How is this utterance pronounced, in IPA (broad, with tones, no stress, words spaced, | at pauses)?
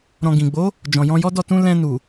ɾɔ̃˧ɡĩ˨ ɡ͡bo˨˦ | d͡ʒɔ̃˨jɔ̃˧jɔ˦dɔ˦˨ tũ˧ lɛ̃˧nu˨